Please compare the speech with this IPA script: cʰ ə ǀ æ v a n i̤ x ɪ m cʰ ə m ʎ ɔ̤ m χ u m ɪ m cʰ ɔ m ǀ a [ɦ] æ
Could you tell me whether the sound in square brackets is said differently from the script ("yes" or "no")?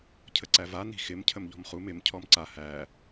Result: yes